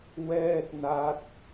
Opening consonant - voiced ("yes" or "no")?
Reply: yes